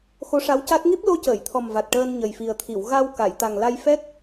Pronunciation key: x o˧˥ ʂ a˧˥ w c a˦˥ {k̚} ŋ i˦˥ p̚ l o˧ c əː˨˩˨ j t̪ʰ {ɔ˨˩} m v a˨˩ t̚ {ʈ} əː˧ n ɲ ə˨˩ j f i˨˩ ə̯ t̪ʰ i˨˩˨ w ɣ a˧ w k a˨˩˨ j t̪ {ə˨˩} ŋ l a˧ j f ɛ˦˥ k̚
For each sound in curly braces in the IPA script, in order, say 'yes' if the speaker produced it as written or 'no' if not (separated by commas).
no, yes, yes, no